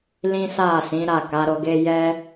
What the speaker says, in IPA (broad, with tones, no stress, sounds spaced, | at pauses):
l ĩ˦ s a˦˨ s ĩ˨˦ ɾ a˦˨ k a˨˦ ɾ o˧ ɡ e˦ j ɛ˦